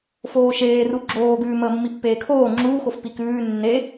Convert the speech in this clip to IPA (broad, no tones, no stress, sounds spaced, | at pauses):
f oː ʃ eː r u ɡ͡ǁ oː ɡ ʉː m əː mː i pː eː kʰ oː ŋ͡ǁ uː x o f p i k ʉː nː e